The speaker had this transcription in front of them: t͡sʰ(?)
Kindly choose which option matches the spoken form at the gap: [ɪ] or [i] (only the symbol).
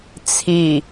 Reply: i